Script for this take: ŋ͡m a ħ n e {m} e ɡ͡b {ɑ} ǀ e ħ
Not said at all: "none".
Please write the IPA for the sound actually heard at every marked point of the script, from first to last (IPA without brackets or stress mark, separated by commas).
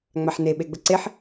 ɓ, ə